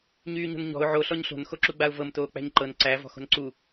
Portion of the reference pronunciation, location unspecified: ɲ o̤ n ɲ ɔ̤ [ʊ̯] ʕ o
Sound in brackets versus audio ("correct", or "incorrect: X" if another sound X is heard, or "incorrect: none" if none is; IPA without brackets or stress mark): correct